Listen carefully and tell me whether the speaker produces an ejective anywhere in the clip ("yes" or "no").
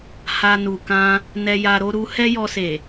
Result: no